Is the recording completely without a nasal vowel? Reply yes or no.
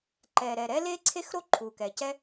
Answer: yes